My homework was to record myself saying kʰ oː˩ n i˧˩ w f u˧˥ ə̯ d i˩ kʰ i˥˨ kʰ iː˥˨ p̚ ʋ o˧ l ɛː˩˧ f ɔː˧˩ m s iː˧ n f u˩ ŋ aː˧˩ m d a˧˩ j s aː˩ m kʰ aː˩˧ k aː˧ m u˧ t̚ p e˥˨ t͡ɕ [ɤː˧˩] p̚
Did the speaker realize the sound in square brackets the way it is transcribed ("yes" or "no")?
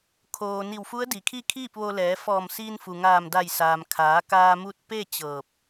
yes